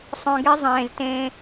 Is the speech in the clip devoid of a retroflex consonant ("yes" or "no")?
yes